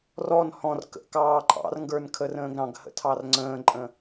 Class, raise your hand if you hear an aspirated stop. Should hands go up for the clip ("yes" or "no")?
yes